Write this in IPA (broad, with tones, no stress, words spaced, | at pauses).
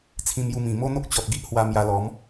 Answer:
t͡sʰĩ˧mju˧mĩ˨˩ mo˦n̪o˦k̚t͡ɕɔ˨t̚ ɡi˦ʔhwa˧ mja˧lɔ˨˦m